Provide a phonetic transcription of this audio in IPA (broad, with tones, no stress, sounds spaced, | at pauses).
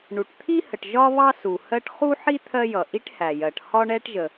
ɳ u˩ ʈ t̪ʰ i˥ h ə˩ ʈ ʒ ɒ˥ β ɑ˥ s u˩ h ɜ˥ ʈ χ u˥ ħ i˥ t̪ʰ ɜ˥ j ʌ˩ ʔ i˥ ʈ h æ˩ j ɜ˩ ʈ h ɒ˥ ɳ ɛ˥ ʈ ʒ ə˩